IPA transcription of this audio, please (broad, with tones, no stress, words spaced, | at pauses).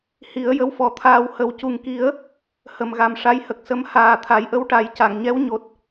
hi˨˩˦ə̯jə˧wfɔ˨˩˦t̪ʰaː˧w hə˨˩wcu˨˩ŋki˨˩˦ə̯ | hə˨˩mɣa˨˩m ʂa˧˥jhə˨˩k̚ sə˧˥m haː˨˩ t̪ʰa˨˩˦jʔə˧wʈa˨˩˦j ca˨˩˨ŋɲɛ˧˥wɲo˨˩t̚